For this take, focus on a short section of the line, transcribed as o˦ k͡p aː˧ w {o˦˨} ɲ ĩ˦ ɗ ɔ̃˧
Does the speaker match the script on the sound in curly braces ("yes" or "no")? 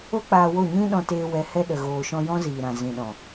yes